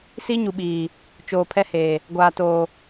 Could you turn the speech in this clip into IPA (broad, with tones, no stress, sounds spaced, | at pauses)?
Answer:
s i˦ ɲ u˨ ɓ iː˨ | t͡ʃ oː˨ pʰ ɛ˦ h eː˨ | ɡʷ aː˨ t oː˨